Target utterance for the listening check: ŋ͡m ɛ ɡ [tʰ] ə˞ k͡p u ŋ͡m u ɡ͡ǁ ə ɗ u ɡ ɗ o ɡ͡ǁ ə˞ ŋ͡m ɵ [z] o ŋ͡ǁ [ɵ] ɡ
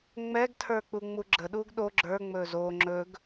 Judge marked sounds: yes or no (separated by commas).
yes, yes, yes